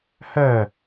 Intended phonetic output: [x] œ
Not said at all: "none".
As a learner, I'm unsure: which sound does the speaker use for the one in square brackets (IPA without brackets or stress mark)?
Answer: h